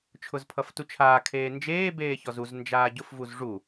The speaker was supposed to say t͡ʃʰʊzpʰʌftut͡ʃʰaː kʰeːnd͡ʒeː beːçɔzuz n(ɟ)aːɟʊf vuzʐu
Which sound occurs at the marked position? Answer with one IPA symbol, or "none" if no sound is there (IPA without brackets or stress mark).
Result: d͡ʒ